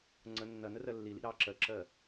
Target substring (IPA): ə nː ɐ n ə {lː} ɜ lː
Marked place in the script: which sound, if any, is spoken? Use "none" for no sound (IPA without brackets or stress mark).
r